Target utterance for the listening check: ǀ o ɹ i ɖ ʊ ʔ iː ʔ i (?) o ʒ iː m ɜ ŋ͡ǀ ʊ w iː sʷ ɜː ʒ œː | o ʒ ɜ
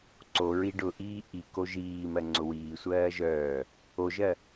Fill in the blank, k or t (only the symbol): k